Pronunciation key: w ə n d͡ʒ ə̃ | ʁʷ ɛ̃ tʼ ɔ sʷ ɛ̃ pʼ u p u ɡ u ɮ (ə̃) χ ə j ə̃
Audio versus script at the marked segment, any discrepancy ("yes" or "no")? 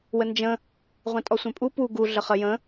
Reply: yes